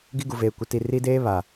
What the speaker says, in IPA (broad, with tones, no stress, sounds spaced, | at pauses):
ɡ i˦ ɡ u˨ v eː˨ kʷ ɪ˨˦ t i˨ r i˦ d eː˦ β a˨